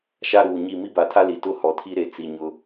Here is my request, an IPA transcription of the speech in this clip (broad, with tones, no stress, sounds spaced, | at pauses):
ʃ a˦ ɾ uː˨ ɲ i˦˨ m i˦ b a˨ tʰ a˦ l i˨ t ʊ˦ h ɔ˨ tʰ i˦ ɾ e˨ t͡s i˨ ɲ ʊ˦